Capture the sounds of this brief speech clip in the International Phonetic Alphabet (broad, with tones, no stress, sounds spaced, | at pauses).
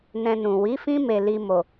n ɛ̃˧ n ũ˨ w i˨˦ f ĩ˦ m e˧ l i˧ m o˨